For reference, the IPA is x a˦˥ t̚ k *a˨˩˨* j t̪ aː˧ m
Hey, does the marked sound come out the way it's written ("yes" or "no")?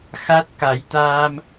no